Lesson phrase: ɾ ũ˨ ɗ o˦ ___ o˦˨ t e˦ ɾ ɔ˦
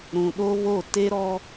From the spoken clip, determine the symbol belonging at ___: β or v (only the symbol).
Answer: β